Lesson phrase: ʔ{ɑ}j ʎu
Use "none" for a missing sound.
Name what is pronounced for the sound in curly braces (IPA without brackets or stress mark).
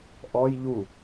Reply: ɔ